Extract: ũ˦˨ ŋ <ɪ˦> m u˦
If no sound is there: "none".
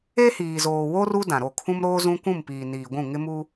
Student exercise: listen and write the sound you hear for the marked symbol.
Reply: ɪ˦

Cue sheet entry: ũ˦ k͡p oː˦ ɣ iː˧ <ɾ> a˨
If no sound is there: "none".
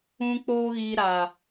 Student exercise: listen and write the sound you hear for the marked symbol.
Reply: ɾ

